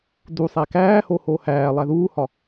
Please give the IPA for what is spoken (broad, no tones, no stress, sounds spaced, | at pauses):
d u sˤ æ k æː h o h oː h æː lˠ æ ð uː h ɒ